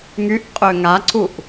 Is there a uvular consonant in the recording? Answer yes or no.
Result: yes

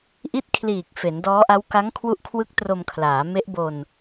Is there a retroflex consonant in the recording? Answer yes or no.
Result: no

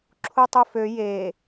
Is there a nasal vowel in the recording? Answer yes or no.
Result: no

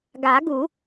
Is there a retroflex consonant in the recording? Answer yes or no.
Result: no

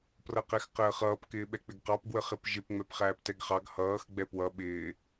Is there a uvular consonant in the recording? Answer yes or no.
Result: yes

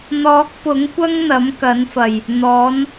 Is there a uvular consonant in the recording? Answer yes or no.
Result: no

